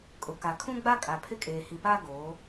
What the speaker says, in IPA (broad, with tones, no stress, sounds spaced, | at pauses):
kʼ ʊ˨ k a˨ kʰ ũ˦ ɡ͡b a˦ kʼ a˨ pʰ ɪ˦ kʼ eː˨ h i˨ p aː˦ ɡ oː˨˦